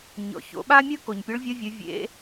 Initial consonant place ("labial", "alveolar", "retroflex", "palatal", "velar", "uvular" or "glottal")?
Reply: palatal